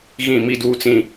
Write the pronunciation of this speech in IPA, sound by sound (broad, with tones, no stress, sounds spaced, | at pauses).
ɣ ĩ˦˨ m i˦ d uː˦ t͡s ĩ˦